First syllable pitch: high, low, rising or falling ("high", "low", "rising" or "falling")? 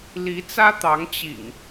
rising